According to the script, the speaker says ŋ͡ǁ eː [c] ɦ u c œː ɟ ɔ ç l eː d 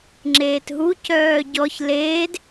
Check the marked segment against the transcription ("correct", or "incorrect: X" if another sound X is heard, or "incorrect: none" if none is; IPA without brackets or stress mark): incorrect: t